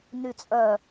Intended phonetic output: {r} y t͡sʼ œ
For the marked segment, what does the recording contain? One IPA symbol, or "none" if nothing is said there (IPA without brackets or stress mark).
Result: n